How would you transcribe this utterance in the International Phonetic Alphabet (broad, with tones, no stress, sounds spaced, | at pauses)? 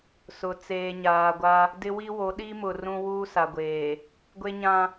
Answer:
s ʊ˨ t͡s eː˨ ɲ aː˨ ɡʷ a˦ | d ɪ˦ w i˦ w o˨˦ ɗ i˦ m ʊ˨ r ũ˦ w uː˦ s a˨ ɡʷ eː˨ | ɡʷ e˦ ɲ ã˦